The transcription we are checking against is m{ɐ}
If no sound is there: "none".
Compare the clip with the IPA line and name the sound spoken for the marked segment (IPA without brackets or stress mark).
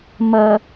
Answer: ɐ